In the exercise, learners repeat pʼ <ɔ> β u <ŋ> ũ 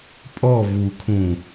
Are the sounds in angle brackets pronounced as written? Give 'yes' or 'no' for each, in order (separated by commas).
yes, no